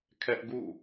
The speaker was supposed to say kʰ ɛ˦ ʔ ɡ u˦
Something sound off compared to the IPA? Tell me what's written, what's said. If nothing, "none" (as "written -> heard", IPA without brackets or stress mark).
u˦ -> ṵ˦˨